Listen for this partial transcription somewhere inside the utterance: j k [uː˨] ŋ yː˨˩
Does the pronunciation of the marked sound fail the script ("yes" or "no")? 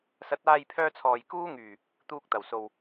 yes